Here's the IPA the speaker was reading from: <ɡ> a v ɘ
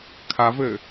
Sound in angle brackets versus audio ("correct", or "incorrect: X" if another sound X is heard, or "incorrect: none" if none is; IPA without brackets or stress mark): incorrect: kʰ